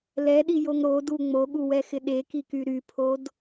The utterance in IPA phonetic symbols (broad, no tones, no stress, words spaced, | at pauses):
lɛɗijoŋ ɾodu ŋ͡moɠuwɛxɪ ɗekiky ɾypʰod